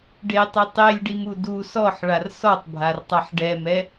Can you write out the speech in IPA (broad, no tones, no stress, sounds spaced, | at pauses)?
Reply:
ɖ e tˤ e tˤ e lʲ ɖ i m u d u s ɔ ħ ɭ a r s ɔ tˤ bʱ a r tˤ a ħ ɖ ɛ m ɛ